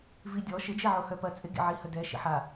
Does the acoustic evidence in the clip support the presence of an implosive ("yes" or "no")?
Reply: no